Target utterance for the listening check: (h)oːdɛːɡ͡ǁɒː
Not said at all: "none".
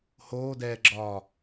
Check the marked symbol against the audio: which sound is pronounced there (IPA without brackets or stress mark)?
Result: h